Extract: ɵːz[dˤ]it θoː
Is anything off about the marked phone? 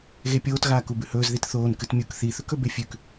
yes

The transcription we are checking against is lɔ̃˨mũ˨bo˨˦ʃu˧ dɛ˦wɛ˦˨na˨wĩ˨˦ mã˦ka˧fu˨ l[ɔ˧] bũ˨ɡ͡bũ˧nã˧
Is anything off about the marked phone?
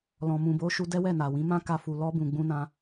no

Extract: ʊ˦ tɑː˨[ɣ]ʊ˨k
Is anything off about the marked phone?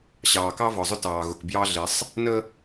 no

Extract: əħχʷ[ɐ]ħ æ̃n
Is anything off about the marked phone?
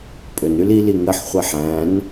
yes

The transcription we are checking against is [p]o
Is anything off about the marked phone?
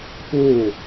no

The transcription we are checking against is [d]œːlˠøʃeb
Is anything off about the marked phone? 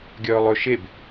yes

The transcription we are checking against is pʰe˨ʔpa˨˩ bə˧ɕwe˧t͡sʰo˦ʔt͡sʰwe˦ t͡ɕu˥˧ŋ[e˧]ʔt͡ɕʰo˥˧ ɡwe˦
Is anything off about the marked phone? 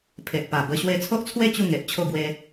yes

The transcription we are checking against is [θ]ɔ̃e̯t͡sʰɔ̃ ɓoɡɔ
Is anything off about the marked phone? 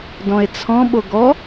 yes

